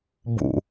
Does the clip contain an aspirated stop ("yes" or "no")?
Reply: no